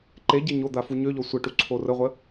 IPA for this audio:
ǃ e ɟ e ɲ o d̪ a f u ɲ ø ʎ ɔ sʷ ə ʈ u ǀʰ o r ə ʁʷ ə

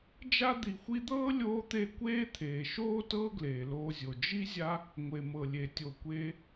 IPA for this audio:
d͡ʒ a˥ d̪ i˨ xʷ i˦ d̪ ɤː˥ lʲ oː˦ t̪ e˦ kʷ eː˥ t̪ʰ eː˩ ʃ oː˥ t ɤː˦ ɡ l eː˩ l oː˨ zʲ o˩ d͡ʒ i˥ zʲ a˦ | ŋʷ e˩ m ɤ˩ lʲ e˩ tʲ o˩ kʷ eː˨

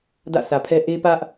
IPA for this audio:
d ä̰˦˨ sʰ ä˨ pʰ ɛ˦ ʔ e˦ p ä˦ ʔ

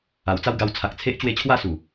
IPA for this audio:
a˨˩ w t͡s a˥˧ w ɡ a˧ w t͡sʰ a˨ k̚ t͡sʰ e˦ ʔ t͡ɕ w e˧ t͡ɕʰ w a˥˧ s u˨˩

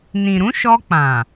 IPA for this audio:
n ĩ˨ ɾ ũ˨˦ ʃ ɔ˧ k͡p ã˨

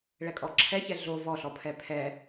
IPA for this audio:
ɭ ɛ kʼ ɔ ǁʰ ɛ ç ɛ ɮ o v ɔ ɬ ɔ pʰ ɛ pʰ ɛ

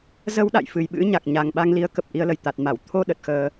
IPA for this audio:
z ə˧ w ɗ a̰˧˨ j f ɨ˨˩ j ɓ ɨ̰˧˥ ɲ a˨˩ k̚ ɲ a˨˩ ŋ ɓ a˧ ŋ l i˨˦ ə̯ k ə˨˩ p̚ ʔ i˧ ə̯ l ə˧˩ j t̪ a˨˩ t̚ m a˧˩ w t̪ʰ o˧ ɗ ə˨˩ t̚ x əː˧

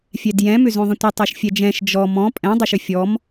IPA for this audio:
fʲ ɛ d j ɛ̃ m ʏ z õ ðˤ ə̃ tʷ ə tˤ ɛ ʃ fʲ ɛ d͡ʒ ɛ̃ ʃ d͡ʒ ɔ m ɔ̃ pʼ ɛ̃ dˤ ə ʃ ʏ fʲ ɔ m

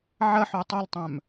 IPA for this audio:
ʕ ɐ ħ ø tˤ o l tˤ œ̃ m

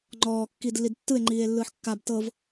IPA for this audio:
ŋ͡ǃ ɔː kː iː d lː i d tː ɯ e̯ ŋ͡ǃ iː e̯ lː ɯː ħ kː a b t ɤ v

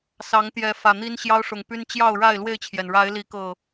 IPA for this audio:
s ɑ˨˦ ŋ t̪ j ɛ˨˦ f ä˨˩ n̪ i˦ n ɕ j ɑ˦ ʊ̯ ʂ ʊ˨˩ ŋ p y˦ n t͡ɕ j ɑ˥˨ ʊ̯ ɻ a˥˨ ɪ̯ l w e˥˨ ɪ̯ t͡ɕʰ j ɛ˩ n ɻ a˨˦ ɪ̯ l i˨˦ k ɤ˨˩

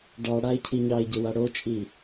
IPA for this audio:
ɖ ɑ ɽ a ɪ̯ cʰ i ɲ ɑ ɪ̯ ɟ ɘ w a ɽ o t͡ʃʼ i

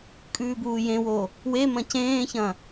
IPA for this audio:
kʼ ʉː b uː j ẽ w o | w e m ɐ̃ c ẽː ç ɐ̃

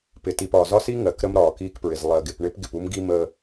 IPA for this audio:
p ɪ˨ t i˨ p ɒː˨ z ɒ˦ s i˦ ŋ ɜ˨ k ɾ ə˦ m ɾ ɒː˨ k iː˦ k p ɹ ɪ˨ z lˠ ɜ˨ ɡ ɪ˨ p ɳ ɪ˦ p ɡ ɪ˨ p u˦ m ɡ i˦ m ə˦

